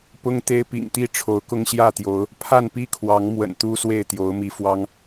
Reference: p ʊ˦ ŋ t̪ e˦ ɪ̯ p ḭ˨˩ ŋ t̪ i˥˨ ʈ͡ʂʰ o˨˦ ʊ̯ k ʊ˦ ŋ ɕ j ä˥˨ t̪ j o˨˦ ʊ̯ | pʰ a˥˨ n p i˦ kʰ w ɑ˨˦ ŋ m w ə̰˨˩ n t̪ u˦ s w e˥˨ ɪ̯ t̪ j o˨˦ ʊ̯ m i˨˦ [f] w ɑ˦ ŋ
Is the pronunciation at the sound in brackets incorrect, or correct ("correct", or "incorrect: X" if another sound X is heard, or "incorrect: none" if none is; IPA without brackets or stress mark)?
correct